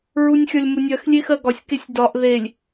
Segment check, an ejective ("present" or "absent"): absent